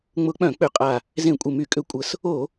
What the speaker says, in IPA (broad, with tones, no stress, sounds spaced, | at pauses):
ŋ͡m ʊ˧˩˧ k͡p œ̃˧˩˧ k͡p ʏ˨˩ qʼ a˨˩ | z ẽ˧˩˧ kʷʼ ɪ˨˩ m y˧˩˧ kʼ ʏ˧˩˧ kʷʼ ə˨˩ s | o˧˩˧